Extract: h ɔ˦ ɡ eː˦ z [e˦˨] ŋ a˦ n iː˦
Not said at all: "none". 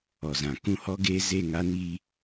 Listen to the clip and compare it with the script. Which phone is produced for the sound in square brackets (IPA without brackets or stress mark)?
e˦˨